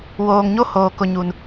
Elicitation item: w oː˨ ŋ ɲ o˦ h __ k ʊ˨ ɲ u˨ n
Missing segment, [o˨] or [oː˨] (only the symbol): oː˨